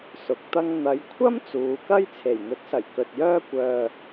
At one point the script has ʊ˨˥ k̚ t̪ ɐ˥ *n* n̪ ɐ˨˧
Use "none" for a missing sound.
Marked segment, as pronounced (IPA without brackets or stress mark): ŋ